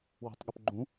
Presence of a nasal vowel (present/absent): present